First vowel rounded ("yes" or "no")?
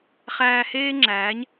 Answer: no